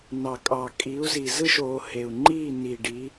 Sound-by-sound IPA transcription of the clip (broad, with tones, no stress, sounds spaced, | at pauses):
n ɑ˨˩ kʼ ɑ˨˩ kʼ iː˨˦ u̯ z i˨˩ z ɯ˥˨ ʃ oː˨˦ h e˨˩ u̯ ŋ͡ǃ iː˥˨ n i˨˩ ɖ i˨˦